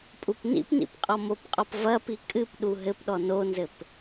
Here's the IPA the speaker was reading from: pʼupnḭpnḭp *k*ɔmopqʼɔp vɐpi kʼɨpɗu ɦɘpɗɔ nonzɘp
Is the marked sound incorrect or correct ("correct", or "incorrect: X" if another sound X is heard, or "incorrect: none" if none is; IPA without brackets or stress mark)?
incorrect: qʼ